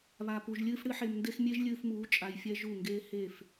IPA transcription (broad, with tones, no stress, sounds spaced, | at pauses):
β a˧ p u˧ ʒ lʲ ɨː˦ f ɽ ɨ˦ ħ e˧ m n d e˦ x mʲ e˦ ʒ lʲ ɨː˧ f m uː˨˦ t͡ʃʼ a˧ j fʲ ɛ˦ ʒ u˦˨ ŋ ɡ eː˦ h e˦˨ f